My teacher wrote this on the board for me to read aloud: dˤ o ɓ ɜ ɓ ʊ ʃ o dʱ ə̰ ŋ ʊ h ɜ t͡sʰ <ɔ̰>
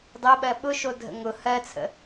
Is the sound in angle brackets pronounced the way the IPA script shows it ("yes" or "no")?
no